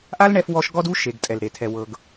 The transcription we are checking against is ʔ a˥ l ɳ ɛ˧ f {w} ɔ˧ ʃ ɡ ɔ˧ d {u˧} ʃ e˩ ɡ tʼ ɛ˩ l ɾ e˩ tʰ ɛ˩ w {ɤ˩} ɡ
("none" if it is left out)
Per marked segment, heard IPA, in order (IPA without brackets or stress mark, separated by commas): w, u˧, ɤ˩